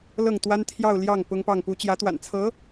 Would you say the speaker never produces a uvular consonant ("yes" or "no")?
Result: yes